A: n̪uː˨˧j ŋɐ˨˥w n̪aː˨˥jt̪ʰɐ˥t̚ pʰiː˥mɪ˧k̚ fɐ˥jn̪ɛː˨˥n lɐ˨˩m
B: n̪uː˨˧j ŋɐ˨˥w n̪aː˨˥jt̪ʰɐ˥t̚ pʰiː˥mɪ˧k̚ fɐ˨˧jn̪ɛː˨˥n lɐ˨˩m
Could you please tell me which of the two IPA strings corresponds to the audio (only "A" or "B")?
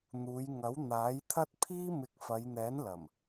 B